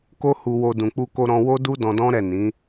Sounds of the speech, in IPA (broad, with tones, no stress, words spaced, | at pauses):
ko˦hu˧wo˧ dũ˨k͡pu˧ko˧ ɾɔ̃˧wo˦du˦ dɔ̃˧dɔ̃˦ɾɛ˦˨ nĩ˨˦